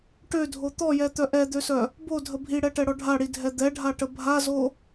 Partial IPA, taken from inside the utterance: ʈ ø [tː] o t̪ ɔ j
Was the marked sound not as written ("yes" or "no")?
yes